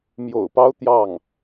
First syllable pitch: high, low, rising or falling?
low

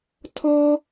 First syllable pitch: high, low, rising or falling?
high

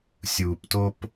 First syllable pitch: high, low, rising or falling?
low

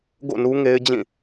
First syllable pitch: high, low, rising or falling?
falling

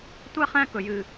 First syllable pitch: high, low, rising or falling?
high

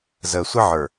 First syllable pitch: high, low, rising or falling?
low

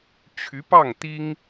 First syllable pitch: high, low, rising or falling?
rising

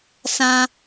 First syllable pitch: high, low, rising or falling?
high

